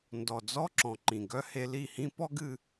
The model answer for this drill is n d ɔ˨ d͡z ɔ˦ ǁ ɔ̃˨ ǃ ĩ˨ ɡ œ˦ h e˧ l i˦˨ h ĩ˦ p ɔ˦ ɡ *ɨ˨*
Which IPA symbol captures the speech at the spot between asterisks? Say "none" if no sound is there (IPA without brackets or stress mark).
ɨ˧